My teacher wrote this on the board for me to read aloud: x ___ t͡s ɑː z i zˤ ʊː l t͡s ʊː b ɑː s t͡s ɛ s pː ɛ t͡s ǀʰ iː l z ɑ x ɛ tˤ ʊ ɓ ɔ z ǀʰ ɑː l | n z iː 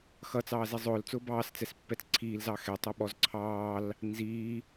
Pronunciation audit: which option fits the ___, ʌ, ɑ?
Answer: ʌ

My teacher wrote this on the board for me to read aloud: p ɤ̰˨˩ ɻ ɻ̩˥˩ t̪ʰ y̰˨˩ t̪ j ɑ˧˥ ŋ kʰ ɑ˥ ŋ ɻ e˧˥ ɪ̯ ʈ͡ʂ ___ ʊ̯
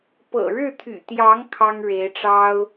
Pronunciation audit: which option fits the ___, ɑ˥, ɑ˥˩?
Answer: ɑ˥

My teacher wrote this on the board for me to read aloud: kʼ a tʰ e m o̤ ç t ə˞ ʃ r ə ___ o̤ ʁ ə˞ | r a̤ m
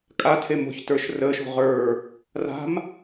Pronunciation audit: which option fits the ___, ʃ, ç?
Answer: ʃ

